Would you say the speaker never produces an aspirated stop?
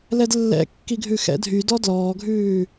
yes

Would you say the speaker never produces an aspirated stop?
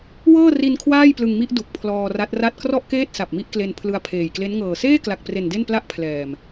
no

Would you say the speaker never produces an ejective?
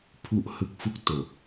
yes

